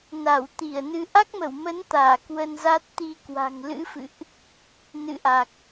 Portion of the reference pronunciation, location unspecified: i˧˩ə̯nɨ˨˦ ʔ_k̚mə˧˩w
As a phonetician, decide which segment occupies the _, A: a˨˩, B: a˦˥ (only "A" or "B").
B